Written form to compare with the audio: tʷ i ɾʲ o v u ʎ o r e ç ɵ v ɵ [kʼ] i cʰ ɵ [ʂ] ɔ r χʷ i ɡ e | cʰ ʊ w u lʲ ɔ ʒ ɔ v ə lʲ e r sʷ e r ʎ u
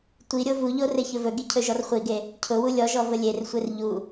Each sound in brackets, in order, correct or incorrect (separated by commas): incorrect, incorrect